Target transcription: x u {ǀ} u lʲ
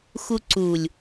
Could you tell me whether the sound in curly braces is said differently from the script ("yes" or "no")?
no